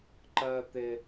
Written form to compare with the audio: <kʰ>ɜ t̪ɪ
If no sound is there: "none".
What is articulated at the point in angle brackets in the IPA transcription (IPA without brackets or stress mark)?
ǃ